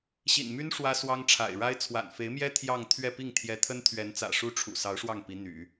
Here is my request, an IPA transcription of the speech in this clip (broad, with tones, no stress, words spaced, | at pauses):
ɕḭ˨˩nmy˥n ʂwä˥swɑ˥ŋ ʈ͡ʂʰa̰˨˩ɪ̯ɻa˥ɪ̯ t͡sʰwa̰˨˩nfe˧˥ɪ̯mjɛ˥ t̪ʰjɑ˥˧ŋ t̪ʰɥɛ˥˧pi˥˩ŋ t̪ʰjɛ˧˥t̪ʰə˥nt̪ʰɥɛ˧˥nt͡sä̰˨˩ ʂu˥ʈ͡ʂʰṵ˨˩ sɑ˧˥ʊ̯ʂwɑ˥˩ŋ pi˧˥n̪y̰˨˩˦